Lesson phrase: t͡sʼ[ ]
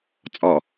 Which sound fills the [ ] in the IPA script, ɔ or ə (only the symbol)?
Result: ɔ